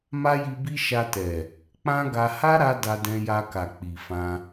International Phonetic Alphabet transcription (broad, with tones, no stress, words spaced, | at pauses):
ma˦ji˧bi˦ ʃa˧tɛ˨ | k͡pã˦ɡa˧ ha˦ɾa˧ da˧dɛ̃˧ja˧ka˨ k͡pi˨fã˧